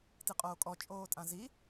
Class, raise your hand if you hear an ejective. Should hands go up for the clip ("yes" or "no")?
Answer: yes